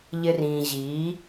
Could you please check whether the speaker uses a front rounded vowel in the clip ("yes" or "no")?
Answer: no